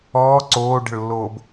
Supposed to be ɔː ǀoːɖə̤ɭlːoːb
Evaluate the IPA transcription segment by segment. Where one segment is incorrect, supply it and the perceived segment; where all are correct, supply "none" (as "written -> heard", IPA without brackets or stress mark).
none